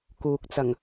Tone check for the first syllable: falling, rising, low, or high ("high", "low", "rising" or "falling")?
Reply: low